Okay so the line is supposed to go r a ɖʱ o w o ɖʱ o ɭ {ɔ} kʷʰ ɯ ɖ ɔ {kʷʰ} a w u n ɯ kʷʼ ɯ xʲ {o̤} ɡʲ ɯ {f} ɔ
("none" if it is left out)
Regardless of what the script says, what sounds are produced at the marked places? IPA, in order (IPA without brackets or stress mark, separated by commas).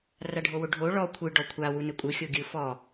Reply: ɔ, kʷʰ, o, f